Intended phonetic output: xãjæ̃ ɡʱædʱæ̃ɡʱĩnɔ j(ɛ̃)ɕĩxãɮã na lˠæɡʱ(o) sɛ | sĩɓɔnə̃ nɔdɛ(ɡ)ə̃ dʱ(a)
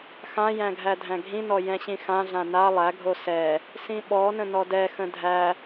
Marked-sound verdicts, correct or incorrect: correct, correct, incorrect: x, incorrect: æ

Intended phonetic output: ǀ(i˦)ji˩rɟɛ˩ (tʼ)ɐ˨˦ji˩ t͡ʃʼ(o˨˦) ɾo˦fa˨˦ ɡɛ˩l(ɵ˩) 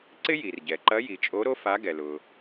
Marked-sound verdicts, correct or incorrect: incorrect: ɪ˦, incorrect: ǃ, correct, incorrect: ʊ˩

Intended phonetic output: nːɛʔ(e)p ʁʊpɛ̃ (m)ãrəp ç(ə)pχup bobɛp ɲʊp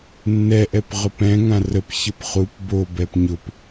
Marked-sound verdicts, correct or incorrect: incorrect: ɛ, incorrect: ŋ, correct

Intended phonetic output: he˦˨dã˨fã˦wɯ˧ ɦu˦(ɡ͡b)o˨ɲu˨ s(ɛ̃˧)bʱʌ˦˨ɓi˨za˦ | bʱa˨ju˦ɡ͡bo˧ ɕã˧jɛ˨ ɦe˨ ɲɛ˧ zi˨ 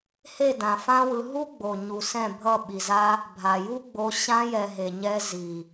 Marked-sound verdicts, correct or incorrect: correct, incorrect: ɛ̃˦˨

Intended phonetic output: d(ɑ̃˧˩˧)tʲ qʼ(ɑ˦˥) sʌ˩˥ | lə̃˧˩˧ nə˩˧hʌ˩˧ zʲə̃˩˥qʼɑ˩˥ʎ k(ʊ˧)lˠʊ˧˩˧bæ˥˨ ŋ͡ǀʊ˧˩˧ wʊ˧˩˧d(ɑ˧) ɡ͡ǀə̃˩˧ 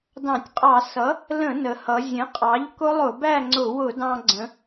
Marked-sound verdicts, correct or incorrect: correct, incorrect: ɑ˧˩˧, incorrect: ʊ˦˥, incorrect: ɑ̃˧

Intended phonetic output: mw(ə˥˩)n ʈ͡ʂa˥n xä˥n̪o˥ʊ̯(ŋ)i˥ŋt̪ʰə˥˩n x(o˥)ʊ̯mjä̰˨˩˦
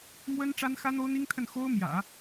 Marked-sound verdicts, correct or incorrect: incorrect: ə˥, incorrect: n̪, correct

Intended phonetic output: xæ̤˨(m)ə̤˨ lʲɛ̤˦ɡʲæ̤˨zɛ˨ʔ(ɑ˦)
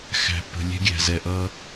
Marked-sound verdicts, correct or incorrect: incorrect: p, incorrect: ʌ˦

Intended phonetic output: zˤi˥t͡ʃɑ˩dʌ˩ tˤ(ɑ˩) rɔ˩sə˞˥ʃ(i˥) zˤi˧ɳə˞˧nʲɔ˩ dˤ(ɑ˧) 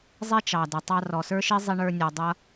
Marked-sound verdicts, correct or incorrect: incorrect: ɑ˧, correct, incorrect: ʌ˧

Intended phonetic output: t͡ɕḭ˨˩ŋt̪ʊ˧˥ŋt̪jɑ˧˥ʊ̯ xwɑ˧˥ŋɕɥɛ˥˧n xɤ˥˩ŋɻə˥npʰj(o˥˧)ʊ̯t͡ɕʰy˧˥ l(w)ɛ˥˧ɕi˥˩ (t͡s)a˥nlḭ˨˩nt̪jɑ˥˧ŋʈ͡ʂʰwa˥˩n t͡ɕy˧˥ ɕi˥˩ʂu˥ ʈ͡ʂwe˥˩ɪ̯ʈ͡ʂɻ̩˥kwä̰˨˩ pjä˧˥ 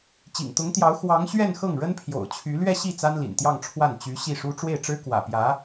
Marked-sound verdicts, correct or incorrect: incorrect: o̰˨˩, incorrect: ɥ, correct

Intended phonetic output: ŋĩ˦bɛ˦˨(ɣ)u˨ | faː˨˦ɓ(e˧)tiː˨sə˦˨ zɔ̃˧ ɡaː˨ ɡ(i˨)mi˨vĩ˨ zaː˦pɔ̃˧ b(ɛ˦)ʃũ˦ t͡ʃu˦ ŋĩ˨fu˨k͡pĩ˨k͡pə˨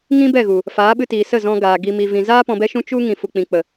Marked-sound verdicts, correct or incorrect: correct, incorrect: ɨ˧, correct, correct

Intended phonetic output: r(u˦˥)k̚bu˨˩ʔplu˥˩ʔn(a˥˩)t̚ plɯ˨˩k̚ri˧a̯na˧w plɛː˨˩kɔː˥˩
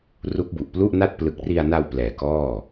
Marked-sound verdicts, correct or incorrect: correct, correct

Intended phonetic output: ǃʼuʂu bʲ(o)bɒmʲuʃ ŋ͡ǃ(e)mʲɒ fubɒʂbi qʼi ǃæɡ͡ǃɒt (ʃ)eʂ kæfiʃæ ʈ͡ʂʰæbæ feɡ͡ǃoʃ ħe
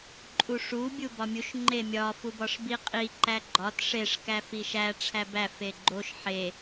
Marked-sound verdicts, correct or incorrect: incorrect: u, correct, incorrect: ʂ

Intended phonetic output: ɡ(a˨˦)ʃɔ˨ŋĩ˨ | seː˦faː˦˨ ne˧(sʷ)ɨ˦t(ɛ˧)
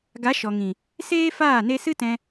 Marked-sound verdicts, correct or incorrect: correct, incorrect: s, incorrect: ɛ̃˧

